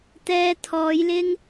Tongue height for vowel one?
mid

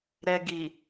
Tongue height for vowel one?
mid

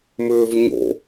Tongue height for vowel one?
high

